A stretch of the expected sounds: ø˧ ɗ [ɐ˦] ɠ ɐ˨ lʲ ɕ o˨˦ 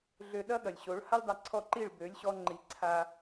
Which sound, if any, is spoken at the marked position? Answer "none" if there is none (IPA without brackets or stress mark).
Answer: ɐ˦